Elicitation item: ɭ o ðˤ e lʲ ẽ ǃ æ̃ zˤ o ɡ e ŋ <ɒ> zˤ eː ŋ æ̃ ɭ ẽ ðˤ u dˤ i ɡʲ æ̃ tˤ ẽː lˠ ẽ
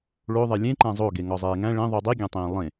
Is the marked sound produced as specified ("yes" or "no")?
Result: yes